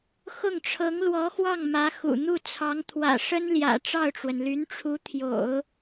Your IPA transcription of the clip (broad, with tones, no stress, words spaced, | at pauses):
xʊ˥˩ŋʈ͡ʂʰɤ˧˥ŋlwɔ˧˥xwɑ˥˩ŋ mä˧˥xṵ˨˩ n̪u˥˩t͡sʰɑ˧˥ŋ t̪ʰwä̰˨˩ʂə˥nljä̰˨˩ ʈ͡ʂɑ˥˩ʊ̯ʈ͡ʂwə˩n ly˧˥nʈ͡ʂʰu˧˥t̪ʰjo̰˨˩˦ʊ̯